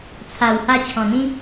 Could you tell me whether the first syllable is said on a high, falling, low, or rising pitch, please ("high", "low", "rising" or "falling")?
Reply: low